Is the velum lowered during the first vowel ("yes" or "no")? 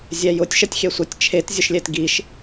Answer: no